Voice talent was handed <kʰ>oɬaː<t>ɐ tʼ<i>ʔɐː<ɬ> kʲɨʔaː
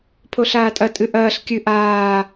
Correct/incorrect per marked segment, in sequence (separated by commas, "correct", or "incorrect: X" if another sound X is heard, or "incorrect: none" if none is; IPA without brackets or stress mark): incorrect: pʰ, incorrect: tʼ, incorrect: ɨ, correct